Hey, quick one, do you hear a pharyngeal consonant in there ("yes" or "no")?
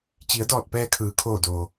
no